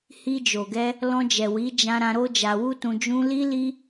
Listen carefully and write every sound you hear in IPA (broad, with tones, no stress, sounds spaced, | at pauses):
h i˧ d͡ʒ o˨ ɡ ɛ˧ | l ɔ̃˧ d͡ʒ ɛ˨ w i˨˦ d͡ʒ ã˧ ɾ ã˧ ɾ o˦ d͡ʒ a˧ w u˦ t ũ˧ d͡ʒ ũ˦ l i˦ l i˦